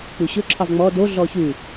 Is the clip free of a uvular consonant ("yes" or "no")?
yes